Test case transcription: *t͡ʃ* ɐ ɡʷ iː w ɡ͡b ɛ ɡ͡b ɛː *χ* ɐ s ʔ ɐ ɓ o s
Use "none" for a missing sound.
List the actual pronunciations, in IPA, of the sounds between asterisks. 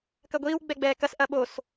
k, k

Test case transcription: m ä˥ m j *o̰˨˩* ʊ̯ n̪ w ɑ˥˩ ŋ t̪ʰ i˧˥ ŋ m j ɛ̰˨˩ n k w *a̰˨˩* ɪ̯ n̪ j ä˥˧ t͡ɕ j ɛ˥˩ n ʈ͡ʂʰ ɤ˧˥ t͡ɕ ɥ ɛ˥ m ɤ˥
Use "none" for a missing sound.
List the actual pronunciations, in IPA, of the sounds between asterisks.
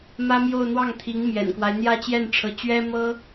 o˥˧, a˦

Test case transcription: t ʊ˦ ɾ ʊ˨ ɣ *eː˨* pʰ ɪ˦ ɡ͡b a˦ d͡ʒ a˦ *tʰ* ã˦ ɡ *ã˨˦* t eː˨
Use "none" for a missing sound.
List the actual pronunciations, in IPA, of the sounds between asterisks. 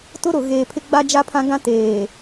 eː˨, pʰ, ã˦

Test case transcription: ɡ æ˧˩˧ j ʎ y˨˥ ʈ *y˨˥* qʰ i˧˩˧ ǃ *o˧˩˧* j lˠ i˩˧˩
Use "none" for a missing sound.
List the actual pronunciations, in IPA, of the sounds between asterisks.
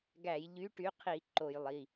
y˨˥, o˧˩˧

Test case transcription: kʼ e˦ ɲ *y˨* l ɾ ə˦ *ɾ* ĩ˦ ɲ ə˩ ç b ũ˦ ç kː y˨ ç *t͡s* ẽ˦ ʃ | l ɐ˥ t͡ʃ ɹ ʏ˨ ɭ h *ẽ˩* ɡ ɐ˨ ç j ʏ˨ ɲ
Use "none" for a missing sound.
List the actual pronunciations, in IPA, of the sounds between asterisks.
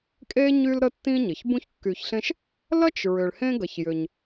y˦, tː, ɬ, ẽ˦

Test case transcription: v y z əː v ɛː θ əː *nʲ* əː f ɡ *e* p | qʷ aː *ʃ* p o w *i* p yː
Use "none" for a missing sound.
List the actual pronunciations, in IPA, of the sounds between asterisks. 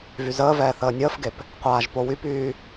nʲ, e, ʒ, y

